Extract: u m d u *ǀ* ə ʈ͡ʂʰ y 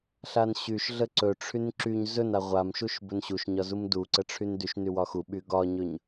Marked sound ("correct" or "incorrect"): correct